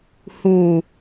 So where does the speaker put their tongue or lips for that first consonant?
throat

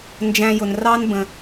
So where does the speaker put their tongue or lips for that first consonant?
tongue tip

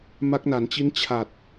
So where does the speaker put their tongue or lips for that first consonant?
lips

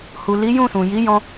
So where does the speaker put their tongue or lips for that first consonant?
throat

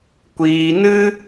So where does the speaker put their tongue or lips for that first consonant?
velum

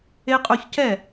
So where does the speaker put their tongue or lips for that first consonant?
uvula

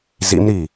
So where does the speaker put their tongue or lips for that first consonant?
tongue tip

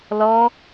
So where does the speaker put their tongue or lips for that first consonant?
tongue tip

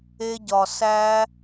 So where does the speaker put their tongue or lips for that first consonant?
palate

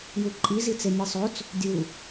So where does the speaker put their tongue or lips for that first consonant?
palate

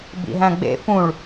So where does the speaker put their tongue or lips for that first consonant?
lips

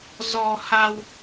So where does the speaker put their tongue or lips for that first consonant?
tongue tip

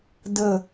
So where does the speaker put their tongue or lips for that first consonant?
tongue tip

